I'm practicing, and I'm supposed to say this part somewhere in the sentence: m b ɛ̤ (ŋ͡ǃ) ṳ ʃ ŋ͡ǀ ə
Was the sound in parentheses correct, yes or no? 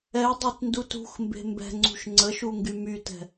no